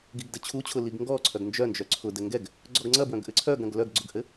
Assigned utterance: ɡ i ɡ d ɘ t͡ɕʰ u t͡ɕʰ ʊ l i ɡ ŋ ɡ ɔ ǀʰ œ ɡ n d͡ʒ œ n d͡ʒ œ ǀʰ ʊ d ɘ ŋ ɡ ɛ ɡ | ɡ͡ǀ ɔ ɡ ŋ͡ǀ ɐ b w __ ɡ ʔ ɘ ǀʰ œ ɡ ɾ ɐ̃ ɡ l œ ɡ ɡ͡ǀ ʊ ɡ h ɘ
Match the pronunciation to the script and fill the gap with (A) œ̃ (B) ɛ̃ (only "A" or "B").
A